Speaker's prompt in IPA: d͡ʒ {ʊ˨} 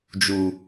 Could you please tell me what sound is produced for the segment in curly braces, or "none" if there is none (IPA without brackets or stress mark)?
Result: u˨